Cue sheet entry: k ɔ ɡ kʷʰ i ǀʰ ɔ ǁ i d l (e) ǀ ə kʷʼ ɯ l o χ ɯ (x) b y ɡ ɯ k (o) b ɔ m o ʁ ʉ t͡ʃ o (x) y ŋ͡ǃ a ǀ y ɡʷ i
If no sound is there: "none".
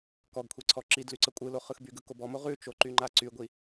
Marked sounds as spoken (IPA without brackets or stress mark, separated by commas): y, x, o, ǃ